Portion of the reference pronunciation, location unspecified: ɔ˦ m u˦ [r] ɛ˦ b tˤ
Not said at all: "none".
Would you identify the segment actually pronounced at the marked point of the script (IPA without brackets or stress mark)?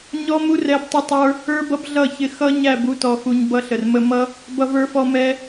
r